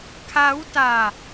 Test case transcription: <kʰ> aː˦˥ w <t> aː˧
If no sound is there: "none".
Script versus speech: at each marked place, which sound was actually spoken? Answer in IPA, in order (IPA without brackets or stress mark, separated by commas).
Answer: kʰ, t